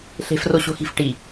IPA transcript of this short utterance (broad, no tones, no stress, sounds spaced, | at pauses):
ɬ e̤ f r o ɕ o̤ x i̤ f ʈ i